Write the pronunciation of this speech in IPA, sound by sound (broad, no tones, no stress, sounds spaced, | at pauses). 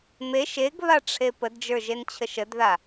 m e ʃ e ɡ β a ʈ͡ʂʰ e p ə d d͡ʒ ə˞ ʒ e n t͡ɕʰ ə ʃ ə d ð a